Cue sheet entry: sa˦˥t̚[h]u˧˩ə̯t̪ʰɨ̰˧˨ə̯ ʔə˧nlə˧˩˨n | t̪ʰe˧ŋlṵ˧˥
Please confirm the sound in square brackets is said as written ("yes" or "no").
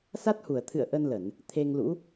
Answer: yes